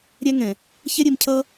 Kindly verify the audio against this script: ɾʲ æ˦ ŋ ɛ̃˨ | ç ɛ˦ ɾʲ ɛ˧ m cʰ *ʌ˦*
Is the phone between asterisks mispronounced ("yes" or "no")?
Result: no